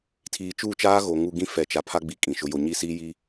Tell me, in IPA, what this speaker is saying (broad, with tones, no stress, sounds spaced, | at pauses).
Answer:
tʰ iː˨ t͡ʃ uː˦˨ t͡ʃ aː˦ ɣ oː˨ ŋ u˨ ɡ ĩ˦ f ɛ˨ t͡ʃ a˨ pʰ a˦ ɡ͡b i˦ kʼ ĩ˨ ʃ ʊ˦ j o˦ ɲ i˦ s iː˦ j i˦